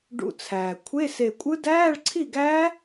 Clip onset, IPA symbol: ɖ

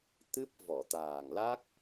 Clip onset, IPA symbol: t̪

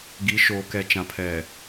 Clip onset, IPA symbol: ɡ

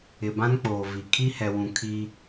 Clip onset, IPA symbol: ɪ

